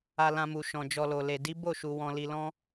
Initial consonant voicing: voiced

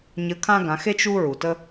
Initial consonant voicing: voiced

